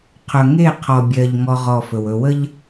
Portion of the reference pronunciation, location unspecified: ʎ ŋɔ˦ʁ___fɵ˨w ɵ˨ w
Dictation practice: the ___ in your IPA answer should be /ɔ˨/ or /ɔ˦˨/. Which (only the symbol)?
ɔ˦˨